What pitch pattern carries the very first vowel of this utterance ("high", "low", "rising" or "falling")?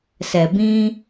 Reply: low